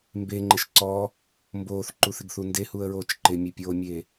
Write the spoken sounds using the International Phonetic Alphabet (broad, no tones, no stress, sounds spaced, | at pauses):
m b e ŋ͡ǃ ɪ ʃ ǀ ɔ | m b oː θ ǃ u θ ɪ ɡ θ u n d e h u ə̯ ɹ oː t͡ʃ ǃ ɪ mʲ e pʲ oː mʲ e